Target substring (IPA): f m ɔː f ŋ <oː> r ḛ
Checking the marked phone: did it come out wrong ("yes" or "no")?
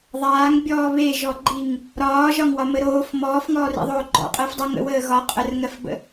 yes